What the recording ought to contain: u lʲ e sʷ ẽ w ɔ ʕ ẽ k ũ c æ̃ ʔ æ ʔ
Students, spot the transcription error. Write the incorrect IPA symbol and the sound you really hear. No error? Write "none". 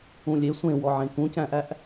u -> ũ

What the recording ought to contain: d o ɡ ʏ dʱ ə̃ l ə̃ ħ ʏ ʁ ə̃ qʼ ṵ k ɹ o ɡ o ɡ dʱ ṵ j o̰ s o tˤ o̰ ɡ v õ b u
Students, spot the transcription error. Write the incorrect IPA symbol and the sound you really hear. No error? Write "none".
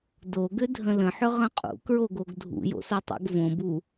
none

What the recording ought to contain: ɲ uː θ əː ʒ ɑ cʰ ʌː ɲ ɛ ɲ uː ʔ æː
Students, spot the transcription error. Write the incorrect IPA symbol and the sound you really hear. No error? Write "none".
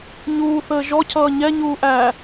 ɑ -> ɔ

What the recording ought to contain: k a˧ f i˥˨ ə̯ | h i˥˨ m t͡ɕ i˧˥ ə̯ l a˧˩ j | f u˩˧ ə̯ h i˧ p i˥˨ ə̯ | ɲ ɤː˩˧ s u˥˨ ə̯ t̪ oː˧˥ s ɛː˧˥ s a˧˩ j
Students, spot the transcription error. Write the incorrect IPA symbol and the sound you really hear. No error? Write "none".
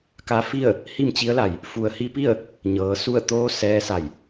none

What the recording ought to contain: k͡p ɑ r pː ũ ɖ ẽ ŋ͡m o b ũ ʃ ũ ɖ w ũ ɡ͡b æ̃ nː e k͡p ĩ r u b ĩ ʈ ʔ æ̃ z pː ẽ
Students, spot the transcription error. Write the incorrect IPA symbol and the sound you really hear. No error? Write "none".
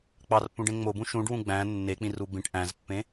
none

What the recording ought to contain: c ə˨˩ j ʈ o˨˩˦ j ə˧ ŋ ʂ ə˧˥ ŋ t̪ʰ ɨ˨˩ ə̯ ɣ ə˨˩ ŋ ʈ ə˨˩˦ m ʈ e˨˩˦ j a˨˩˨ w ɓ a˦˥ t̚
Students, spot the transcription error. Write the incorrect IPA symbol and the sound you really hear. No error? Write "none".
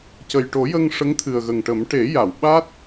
none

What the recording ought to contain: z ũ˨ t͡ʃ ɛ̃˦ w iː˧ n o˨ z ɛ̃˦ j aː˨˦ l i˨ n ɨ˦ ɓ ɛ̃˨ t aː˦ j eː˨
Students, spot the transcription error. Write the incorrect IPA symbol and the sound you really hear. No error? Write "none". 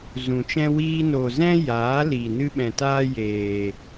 none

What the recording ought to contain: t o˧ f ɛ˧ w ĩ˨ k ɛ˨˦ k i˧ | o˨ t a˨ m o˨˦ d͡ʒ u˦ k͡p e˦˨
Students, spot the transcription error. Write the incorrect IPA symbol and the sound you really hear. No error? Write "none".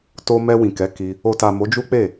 f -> m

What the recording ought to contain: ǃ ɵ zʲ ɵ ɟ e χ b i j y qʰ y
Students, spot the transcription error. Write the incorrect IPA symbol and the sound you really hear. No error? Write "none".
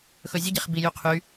ǃ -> x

